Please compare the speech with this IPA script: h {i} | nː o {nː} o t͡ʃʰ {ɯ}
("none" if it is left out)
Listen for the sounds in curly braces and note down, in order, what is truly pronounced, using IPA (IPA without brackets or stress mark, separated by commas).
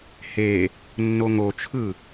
e, ŋ, ɯ